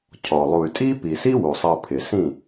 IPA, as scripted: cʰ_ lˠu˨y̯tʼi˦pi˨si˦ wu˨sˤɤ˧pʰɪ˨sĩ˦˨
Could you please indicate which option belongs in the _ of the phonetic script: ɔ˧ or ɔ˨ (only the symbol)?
ɔ˨